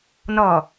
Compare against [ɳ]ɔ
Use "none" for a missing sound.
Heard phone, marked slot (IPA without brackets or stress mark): n